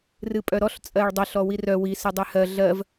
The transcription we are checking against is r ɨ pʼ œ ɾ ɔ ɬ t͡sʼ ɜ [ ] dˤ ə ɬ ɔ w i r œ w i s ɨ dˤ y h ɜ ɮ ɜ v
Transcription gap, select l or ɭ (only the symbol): ɭ